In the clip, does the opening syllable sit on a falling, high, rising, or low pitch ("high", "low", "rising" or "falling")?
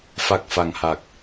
low